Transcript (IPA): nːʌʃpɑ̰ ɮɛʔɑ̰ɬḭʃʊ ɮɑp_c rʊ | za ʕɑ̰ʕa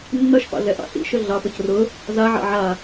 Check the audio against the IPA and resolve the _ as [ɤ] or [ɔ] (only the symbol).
ɤ